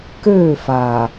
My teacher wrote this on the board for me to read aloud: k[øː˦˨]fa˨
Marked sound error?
no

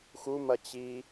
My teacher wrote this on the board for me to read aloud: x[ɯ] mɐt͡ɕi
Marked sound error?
yes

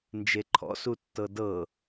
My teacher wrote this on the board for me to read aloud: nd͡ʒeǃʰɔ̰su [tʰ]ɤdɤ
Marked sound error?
yes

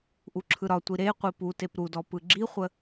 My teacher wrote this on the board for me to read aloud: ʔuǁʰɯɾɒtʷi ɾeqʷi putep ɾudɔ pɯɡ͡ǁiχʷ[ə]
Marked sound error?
no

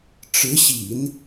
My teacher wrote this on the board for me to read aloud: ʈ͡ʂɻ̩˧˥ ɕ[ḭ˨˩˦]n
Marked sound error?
no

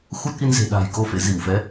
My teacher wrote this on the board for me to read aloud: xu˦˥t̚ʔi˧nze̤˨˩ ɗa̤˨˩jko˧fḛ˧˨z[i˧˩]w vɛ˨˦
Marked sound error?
no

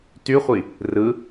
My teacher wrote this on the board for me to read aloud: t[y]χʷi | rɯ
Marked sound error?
no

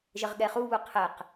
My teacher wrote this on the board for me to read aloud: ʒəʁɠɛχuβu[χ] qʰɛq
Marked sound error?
yes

